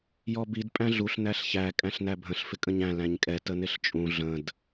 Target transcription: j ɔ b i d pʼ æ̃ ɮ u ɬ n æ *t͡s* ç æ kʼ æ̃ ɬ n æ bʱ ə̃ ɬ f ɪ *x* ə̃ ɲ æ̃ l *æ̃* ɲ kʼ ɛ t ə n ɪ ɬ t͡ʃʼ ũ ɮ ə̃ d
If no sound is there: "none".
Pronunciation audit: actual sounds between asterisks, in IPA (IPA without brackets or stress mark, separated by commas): ɬ, kʼ, æ̃